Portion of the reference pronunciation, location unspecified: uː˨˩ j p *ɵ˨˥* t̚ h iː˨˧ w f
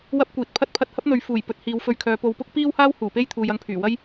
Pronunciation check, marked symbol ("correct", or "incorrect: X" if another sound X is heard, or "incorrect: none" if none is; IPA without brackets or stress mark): correct